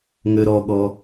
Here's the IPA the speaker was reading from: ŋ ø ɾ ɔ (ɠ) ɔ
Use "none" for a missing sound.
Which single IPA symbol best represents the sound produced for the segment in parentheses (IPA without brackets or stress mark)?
ɠ